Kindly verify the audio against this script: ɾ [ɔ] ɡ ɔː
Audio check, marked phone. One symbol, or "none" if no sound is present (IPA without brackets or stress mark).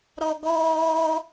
ɔ